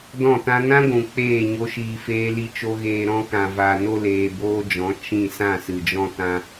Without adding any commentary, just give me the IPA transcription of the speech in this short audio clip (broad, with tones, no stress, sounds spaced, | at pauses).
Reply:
d ɔ̃˦˨ t ã˦ n ã˦ ɡʷ ũ˨ k͡p eː˦˨ ɲ o˧ ʃ iː˧ f eː˦ l i˦ t͡ʃ o˦ ɣ eː˧ ɾ ɔ̃˦ k ã˨ v a˨ n o˧ l eː˨ b oː˦ d͡ʒ ɔ̃˨˦ t͡ʃ ĩ˦˨ s ã˦˨ s ɨ˨ d͡ʒ ɔ̃˧ t ã˧